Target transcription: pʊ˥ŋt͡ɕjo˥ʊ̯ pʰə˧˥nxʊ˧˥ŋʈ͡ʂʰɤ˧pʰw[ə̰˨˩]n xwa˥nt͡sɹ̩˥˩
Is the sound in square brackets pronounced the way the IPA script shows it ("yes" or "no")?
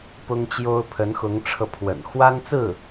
yes